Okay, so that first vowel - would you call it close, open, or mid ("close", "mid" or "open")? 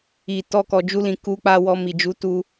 close